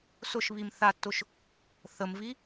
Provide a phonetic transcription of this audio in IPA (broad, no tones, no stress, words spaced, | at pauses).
sʊʃβim θatːʊʃ | θəmvi